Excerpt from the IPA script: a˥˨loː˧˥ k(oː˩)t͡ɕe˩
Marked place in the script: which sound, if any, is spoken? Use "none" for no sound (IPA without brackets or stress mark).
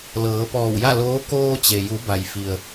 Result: oː˧